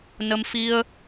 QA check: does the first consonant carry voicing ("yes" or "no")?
yes